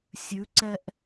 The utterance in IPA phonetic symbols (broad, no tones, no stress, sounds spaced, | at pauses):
sʲ ʉ ǀ ɛ ʔ